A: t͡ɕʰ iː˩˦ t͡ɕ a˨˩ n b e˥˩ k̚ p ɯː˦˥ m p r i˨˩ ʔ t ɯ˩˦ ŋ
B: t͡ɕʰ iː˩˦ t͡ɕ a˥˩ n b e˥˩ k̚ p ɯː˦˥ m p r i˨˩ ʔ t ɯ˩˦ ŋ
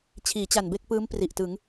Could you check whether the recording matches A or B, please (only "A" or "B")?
A